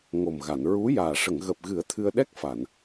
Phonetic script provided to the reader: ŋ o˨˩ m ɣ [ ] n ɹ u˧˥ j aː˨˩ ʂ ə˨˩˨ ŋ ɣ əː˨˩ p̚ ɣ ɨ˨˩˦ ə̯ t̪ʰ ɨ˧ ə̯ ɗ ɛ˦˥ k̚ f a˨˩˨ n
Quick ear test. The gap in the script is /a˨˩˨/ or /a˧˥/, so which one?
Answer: a˨˩˨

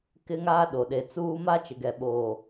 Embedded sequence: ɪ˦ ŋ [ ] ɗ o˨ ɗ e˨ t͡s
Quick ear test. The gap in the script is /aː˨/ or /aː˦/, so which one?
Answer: aː˦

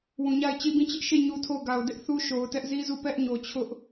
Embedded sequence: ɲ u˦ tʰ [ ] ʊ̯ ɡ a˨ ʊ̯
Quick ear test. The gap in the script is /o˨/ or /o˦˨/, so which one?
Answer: o˦˨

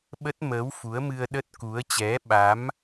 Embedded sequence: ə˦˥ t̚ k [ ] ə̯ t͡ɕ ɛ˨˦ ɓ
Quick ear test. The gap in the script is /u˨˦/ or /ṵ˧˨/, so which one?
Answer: u˨˦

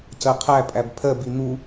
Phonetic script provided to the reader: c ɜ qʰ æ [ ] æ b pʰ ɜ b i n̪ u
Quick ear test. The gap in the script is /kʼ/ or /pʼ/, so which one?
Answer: pʼ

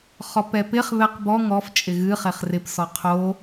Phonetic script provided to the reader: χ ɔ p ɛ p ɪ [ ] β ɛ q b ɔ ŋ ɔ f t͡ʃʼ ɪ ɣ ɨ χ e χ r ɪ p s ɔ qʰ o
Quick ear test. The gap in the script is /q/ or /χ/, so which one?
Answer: χ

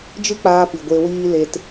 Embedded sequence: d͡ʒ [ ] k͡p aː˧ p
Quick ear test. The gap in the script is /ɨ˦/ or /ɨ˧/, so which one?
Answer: ɨ˦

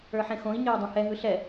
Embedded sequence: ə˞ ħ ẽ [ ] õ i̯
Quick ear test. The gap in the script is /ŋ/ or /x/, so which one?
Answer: x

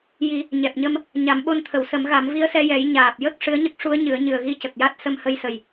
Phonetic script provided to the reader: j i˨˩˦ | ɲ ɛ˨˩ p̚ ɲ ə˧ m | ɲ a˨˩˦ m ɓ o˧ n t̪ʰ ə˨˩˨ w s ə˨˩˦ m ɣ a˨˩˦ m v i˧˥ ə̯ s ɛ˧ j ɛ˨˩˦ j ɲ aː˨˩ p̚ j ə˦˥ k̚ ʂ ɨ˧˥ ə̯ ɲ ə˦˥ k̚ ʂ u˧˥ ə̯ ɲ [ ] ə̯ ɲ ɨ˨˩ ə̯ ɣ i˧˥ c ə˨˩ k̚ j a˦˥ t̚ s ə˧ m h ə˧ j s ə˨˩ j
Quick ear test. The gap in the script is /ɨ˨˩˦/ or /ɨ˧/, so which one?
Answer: ɨ˨˩˦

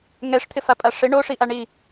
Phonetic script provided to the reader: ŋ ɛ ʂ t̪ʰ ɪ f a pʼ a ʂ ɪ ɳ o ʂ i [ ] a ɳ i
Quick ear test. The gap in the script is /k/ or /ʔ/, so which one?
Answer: ʔ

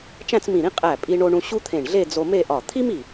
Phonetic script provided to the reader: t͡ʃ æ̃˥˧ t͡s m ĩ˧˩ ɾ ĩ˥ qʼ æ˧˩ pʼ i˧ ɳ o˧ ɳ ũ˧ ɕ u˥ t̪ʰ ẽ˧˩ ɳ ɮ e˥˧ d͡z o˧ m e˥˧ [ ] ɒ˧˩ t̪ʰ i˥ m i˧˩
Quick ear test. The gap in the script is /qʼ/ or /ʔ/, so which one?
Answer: ʔ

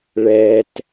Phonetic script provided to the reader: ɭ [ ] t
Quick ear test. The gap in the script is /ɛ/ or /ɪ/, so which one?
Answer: ɛ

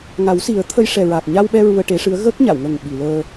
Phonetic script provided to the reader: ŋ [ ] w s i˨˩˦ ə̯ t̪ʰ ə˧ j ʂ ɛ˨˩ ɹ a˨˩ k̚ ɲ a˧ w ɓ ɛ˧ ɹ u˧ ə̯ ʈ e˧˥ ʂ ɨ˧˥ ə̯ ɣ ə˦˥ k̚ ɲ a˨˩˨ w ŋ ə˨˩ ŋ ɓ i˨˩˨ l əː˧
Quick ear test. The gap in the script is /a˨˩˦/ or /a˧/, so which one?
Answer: a˨˩˦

